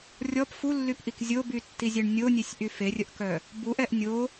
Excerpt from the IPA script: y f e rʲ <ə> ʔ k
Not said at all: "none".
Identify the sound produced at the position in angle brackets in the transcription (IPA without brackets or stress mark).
ə